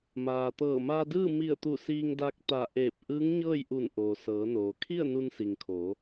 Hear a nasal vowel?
no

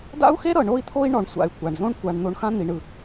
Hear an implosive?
no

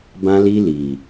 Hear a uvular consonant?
no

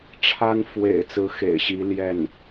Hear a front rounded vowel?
no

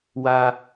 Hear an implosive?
no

